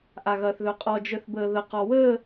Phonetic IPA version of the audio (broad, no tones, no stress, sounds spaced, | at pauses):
ʔ a ɣ ɐː θ ð œ qʼ ɔ d͡ʒ œ θ b əː ð ə q ɔ w əː